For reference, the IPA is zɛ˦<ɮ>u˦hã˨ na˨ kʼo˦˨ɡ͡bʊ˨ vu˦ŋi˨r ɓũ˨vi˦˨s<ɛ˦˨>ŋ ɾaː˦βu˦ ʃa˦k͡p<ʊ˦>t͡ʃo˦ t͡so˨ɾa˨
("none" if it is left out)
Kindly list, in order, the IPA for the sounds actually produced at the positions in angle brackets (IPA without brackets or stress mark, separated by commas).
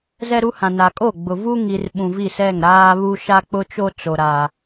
ɾ, ɛ˦˨, ʊ˦